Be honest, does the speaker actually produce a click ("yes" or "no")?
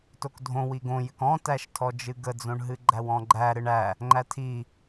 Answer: yes